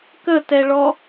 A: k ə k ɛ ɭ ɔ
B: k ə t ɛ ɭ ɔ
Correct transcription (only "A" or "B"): B